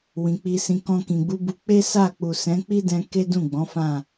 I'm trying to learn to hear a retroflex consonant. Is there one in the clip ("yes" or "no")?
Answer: no